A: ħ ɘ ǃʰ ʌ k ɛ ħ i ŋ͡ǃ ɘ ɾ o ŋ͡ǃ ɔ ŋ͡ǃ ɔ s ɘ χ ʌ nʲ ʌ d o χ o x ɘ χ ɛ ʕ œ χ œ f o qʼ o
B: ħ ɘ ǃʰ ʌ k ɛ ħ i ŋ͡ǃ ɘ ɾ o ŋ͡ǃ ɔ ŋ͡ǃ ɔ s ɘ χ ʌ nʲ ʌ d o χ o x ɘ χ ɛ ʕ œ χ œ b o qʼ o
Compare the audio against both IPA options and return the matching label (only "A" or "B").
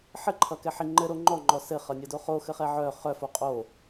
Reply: A